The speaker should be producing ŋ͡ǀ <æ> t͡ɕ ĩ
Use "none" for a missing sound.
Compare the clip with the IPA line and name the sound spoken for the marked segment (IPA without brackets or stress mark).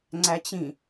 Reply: æ